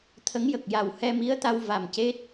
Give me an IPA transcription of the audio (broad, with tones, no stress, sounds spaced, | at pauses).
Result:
t̪ʰ ə˧˥ ŋ j ə˨˩ k̚ j a˨˩ w h ɛ˧ m i˧˥ ə̯ t̪ a˧ w v a˨˩ m c e˦˥ t̚